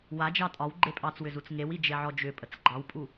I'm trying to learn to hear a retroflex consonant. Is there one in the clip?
no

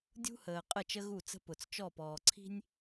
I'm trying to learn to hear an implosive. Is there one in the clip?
no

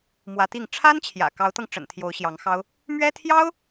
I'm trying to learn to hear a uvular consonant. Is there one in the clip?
no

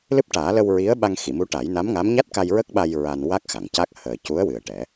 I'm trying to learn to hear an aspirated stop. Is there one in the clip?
no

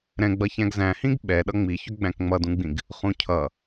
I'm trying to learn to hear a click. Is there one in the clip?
no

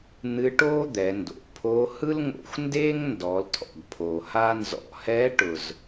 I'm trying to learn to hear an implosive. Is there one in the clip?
no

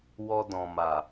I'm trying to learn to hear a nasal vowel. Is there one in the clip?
yes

